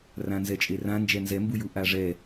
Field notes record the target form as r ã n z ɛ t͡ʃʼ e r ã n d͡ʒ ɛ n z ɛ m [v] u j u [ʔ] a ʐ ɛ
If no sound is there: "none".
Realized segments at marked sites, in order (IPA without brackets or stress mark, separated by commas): b, ʔ